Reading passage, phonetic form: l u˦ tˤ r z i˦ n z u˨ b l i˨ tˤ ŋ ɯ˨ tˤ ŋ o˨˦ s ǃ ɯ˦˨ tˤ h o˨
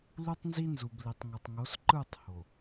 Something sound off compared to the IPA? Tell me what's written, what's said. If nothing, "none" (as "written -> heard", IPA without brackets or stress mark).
r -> n